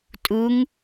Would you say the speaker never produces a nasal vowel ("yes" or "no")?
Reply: yes